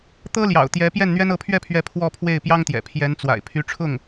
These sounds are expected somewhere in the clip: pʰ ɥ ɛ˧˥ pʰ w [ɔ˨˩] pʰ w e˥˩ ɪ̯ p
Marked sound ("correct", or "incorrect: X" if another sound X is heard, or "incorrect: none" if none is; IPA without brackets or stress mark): incorrect: ɔ˥˧